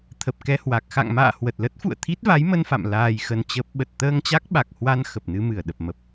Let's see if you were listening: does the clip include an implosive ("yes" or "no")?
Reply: yes